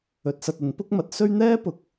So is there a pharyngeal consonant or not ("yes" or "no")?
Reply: no